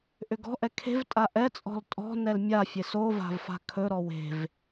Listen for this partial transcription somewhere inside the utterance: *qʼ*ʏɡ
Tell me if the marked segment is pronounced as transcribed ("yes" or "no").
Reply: no